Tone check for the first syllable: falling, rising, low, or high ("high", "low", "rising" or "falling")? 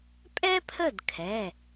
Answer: high